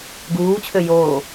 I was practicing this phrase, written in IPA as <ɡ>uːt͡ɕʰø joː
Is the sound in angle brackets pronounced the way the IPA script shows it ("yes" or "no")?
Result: yes